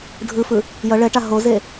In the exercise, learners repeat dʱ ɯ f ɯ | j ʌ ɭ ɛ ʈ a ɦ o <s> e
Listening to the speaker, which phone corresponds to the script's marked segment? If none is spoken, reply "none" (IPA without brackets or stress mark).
z